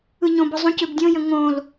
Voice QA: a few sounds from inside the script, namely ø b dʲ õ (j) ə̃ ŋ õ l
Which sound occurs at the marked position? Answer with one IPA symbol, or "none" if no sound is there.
j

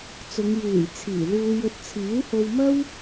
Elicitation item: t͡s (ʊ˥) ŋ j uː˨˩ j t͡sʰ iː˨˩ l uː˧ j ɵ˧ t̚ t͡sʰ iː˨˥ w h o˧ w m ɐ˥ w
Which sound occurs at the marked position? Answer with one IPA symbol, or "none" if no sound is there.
ʊ˨˧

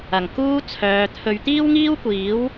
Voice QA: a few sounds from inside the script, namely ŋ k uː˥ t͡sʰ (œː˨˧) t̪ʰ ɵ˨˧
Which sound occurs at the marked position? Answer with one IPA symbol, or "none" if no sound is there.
œː˨˧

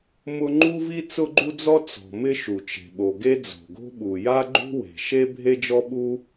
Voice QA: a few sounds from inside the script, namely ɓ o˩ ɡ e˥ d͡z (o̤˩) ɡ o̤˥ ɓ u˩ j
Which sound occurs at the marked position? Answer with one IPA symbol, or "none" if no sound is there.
o̤˩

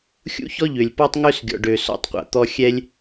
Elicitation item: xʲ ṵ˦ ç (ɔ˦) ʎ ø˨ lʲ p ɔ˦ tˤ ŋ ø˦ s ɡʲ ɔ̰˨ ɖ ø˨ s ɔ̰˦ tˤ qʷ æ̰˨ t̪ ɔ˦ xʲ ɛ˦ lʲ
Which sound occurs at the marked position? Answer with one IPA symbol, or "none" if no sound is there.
ɔ˦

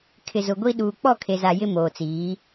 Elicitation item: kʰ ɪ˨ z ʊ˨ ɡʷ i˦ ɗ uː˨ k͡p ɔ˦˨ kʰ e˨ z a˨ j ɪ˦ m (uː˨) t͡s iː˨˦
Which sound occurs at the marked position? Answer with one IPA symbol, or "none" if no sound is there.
oː˨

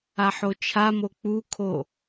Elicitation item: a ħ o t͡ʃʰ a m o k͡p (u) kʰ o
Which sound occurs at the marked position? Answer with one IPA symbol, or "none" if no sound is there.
u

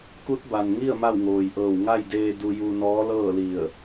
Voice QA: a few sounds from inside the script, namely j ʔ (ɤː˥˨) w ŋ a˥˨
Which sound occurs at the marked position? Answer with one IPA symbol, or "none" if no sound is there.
ɤː˧˩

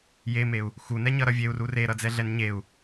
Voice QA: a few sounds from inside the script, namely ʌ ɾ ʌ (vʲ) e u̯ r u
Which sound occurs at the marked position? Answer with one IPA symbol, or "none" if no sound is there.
vʲ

